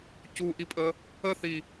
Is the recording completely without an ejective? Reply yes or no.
no